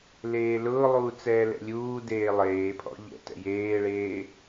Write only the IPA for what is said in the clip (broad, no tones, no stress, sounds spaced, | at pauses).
l eː l ʊː lˠ uː t͡s ɛː l ɛ̰ lʲ uː d eː lˠ eː pʰ ɔ̰ ʎ ɛ̰ t ɛ̰ j eː ɭ eː